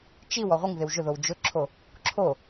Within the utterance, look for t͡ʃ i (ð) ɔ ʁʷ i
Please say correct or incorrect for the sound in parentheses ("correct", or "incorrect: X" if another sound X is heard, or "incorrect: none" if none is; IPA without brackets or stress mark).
incorrect: w